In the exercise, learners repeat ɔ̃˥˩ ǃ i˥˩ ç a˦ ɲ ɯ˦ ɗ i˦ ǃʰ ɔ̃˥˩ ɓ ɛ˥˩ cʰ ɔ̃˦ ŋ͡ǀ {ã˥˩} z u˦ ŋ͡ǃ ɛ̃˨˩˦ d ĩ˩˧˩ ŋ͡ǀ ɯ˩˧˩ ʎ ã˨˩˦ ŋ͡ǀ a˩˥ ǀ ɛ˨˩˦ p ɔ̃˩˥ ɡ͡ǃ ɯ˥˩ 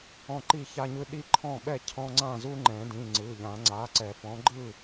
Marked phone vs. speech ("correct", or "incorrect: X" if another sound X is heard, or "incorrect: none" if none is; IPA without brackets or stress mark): correct